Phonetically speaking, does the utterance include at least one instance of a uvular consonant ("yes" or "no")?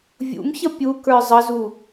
no